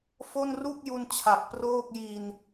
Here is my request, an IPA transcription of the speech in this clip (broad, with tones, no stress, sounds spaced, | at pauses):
f o˥˩ n r u˥˩ k̚ j u˧ n t͡ɕʰ a˨˩ k̚ p r oː˥˩ k̚ j i˧ n